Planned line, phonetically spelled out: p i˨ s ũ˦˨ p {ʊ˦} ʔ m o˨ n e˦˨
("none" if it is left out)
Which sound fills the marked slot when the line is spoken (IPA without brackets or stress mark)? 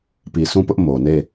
ʊ˦